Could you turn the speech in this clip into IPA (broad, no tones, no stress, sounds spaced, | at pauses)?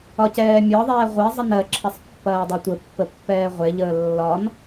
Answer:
ɒ c ɛː mʲ ɒ ðˤ ɛː ʁʷ e zˤ ə n ɜ ǁʰ ɐ sˤ pː ɐː dˤ ɛ tʷ ə pː ə pː ɛː ʁʷ e ʎ əː lː ɒ n